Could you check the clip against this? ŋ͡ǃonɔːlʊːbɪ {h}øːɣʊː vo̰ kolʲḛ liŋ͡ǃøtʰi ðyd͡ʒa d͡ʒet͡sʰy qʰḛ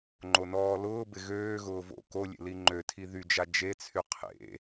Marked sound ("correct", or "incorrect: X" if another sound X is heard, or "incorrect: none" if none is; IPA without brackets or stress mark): incorrect: ɣ